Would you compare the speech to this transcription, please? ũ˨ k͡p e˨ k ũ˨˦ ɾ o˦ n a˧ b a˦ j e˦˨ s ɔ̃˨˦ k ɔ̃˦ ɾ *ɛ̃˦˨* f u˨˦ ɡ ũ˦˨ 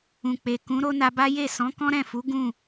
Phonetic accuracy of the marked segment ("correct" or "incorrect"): correct